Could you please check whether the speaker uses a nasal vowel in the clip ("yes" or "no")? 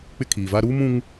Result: yes